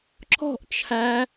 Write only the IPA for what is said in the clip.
ǁ ɔ̤ ʔ t͡ʃʰ æ

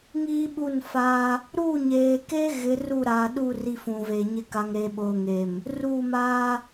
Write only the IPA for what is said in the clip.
ŋ iː˦ ɓ u˦˨ n f a˦ | ɾ u˦˨ ɲ eː˨ k e˦ ɣ ɪ˨˦ r u˦˨ ɾ aː˨ ɗ u˦˨ r i˦ f ũ˨ v e˨ ɲ ɪ˦ k a˨ ŋ ɾ eː˨ ɓ oː˨ ŋ e˨ m | r uː˦˨ m aː˦

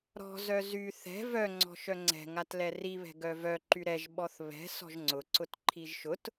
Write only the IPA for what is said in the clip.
ɾ ɔ̤ z œ z y θ ɛ̤ v œ ŋ͡ǀ ɔ̤ ʃ œ ŋ͡ǀ ɛ̤ ŋ a t l ɛ r i β ɛ̤ ɡ œ v œ ǃ y ɾ ɛ ʒ ɓ ɔ θ β ɛ̤ s ɔ̤ ʒ ŋ͡ǀ ʊ ǀ ʊ t ǃʰ i ʒ ʃ ʊ t

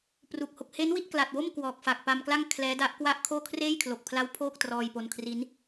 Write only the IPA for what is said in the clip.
p r u˨˩ k̚ h o˨˩ k̚ h e˦˥ n w i˥˩ t̚ k l a˨˩ t̚ w o˥˩ m k w ɔː˨˩ k̚ f a˨˩ k̚ p a˧ m k l a˥˩ ŋ kʰ l ɛː˦˥ d a˦˥ ʔ k w a˥˩ ʔ kʰ oː˥˩ kʰ r eː˥˩ j kʰ l o˨˩ k̚ pʰ l a˦˥ w pʰ oː˥˩ k̚ t r ɔː˧ j p o˧ n kʰ r i˦˥ n

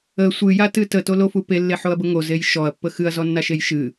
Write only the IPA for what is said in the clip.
ə sʷ ɨ j a t ɨ t ə t o l o f u p e lː e ħ o ɐ̯ b ə ŋ o z e j ʃ ɔ ɐ̯ pː ə x ɨ ɐ̯ z ɔ nː a ʃ e j ʃ ɨ

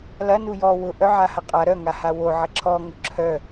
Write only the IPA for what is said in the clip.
l ɐ n u j ɔ w ʊ ʔ œ ʕ a h ɐ qʼ a ɾ œ ŋ a h a w o ʕ ɐ ǁʰ ɔ ŋ ʊ ǁʰ œ

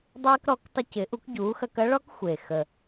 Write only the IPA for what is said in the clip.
dˤ eː˦ k ɾ ɔ˨˥ k tˤ ə˦ c ɪ˨˥ ʔ u˨˥ k ɟ uː˨˥ x ɐ˦ k ɐ˦ ɭ ɔ˦ k xʷ e˨˩ x ə˨˩

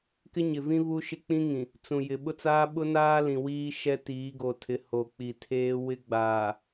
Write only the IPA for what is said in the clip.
k ɪ˦ ɲ ɪ˨ v ĩ˦ β u˦ ʃ ɪ˦ k͡p ĩ˦ ŋ ĩ˨ | t͡s ũ˨ j ɪ˨ ɓ ʊ˦ t͡s aː˦ ɓ ʊ˦ n aː˦ l ĩ˨ w iː˦ ʃ ɛ˦ t iː˨˦ ɡ o˨ tʰ ɪ˨˦ h o˨ k͡p i˨ tʰ eː˦ w ɪ˦ ɡ͡b aː˨

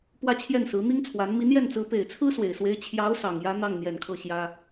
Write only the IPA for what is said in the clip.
p w ä˥˧ t͡ɕʰ j ɛ˥˩ n s ɹ̩˧˥ n̪ i˥ ŋ t͡sʰ w a˧˥ n m i˧˥ n j ɛ˥˩ n t͡s ɹ̩˧˥ p e˨˩ ɪ̯ t͡sʰ ɹ̩˥ s w e˨˩ ɪ̯ s w e˧˥ ɪ̯ t͡ɕʰ j ɑ˧˥ ʊ̯ s ɑ˨˩ ŋ j ä˥ n̪ ɑ˥˩ ŋ n̪ j ɛ˨˩ n kʰ ɤ˥˩ ɕ j ä˥

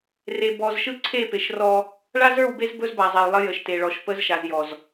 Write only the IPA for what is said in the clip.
r e˨ b ɔ˨ z ʃ ɯ˦ ǀʰ e˦˨ p e˨ ʃ r ɔ˦ | ɭ a˦ z ə˞˦˨ w b e˦ z b ɵ˦ z b a˨ zˤ e˨ j lˠ ə˦ j ə˨ ʃ t e˨ ɭ ɔ˨ ʃ p ə˨˦ z ʃ a˨ z j ɔ˨ z

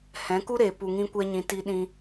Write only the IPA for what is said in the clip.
h ɛ̃˨˦ k u˦ ɾ eː˨ p u˧ ŋ ĩ˦ kʷ ɛ˦ ɲ ĩ˧ t i˧ ɗ ĩ˧

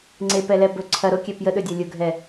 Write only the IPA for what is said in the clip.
ŋ͡ǀ e p ɛ l ɛ b ɵ ǀʰ ɐ ɾ o kʲ ɛ p j ə ɗ ɵ dʲ ɐ lʲ ʊ ɡʱ ɛ

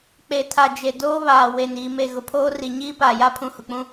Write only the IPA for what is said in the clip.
k͡p e˨ tʰ a˨ d͡ʒ e˨ d oː˦ β aː˨ w e˨ n iː˨ m e˨ ɣ ʊ˨ pʰ oː˦ r i˨ ɲ iː˦ p aː˨ j a˦ pʰ ũ˨ h ʊ˨ k͡p ũ˦

